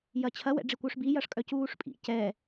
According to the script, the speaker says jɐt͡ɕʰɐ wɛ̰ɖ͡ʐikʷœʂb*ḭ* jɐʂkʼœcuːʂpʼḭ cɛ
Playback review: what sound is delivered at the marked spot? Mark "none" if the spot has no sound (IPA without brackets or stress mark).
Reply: i